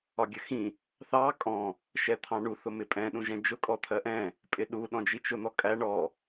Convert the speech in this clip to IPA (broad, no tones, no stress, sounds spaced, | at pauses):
ɒ ɡʲ ə x ĩ | θ ɑ kʼ ɔ̃ | ʃ ɛ t̪ʰ ɑ̃ ɳ u θ ʊ m ɪ pʼ ɛ̃ ɗ ũ ʒ ɛ̃ d͡ʒ ʊ kʼ ɔ t̪ʰ ɜ ʔ ɛ̃ | pʼ ɪ ɗ u ɗ ɔ̃ d͡ʒ i t͡ʃ ʊ n̪ ɔ kʼ æ ɳ ɔ